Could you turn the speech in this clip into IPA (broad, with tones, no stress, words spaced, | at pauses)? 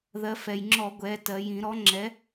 ðɜ˩˧fɛ˩jŋ͡ǁɔ˧˩˧ ɡʷɛ˩˧tɜ˩˧j ĩ˧˩˧ɾɔ˨˥ŋ͡ǁɛ˨˥